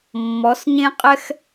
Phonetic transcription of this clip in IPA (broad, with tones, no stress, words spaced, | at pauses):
mːɔ˨˦sɲẽ˦qʼɛ˦x